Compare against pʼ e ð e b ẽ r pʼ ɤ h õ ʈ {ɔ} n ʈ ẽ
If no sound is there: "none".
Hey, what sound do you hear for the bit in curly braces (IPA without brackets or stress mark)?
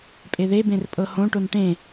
o